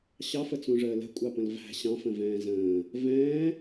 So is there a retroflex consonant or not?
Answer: yes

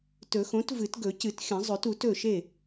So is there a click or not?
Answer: no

